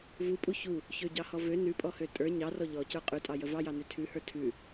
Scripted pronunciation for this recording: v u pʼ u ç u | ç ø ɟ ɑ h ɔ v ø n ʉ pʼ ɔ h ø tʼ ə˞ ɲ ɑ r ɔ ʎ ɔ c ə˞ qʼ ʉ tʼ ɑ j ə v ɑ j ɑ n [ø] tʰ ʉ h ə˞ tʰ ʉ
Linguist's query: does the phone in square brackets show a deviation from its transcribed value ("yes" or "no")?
no